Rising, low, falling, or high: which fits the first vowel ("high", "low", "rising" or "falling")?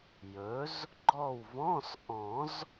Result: rising